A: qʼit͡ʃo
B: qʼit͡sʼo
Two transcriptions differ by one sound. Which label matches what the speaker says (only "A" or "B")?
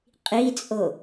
B